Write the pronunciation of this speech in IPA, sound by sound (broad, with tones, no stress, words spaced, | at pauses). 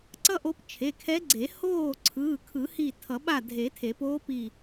ǀʌ˥ʔo˧˥p t͡ʃʰe˩˧˩kʰɛ˧˥ɡ͡ǀe˨˩˦ hoː˥˨ ǀʰɯː˩˧˩kʰɯ˨˩˦ hi˥˨ tʰʌ˨˩˦ɓa˥˨dʱe˨˩˦ tʰe˨˩˦poː˧˥ pi˧˩